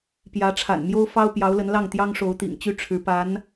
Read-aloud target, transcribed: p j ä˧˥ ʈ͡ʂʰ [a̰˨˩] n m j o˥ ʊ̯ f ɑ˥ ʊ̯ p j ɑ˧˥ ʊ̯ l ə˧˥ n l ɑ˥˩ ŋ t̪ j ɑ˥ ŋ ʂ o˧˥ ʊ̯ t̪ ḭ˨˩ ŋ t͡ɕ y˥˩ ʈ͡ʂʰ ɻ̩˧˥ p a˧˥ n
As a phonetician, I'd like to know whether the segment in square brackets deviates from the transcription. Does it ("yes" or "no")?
no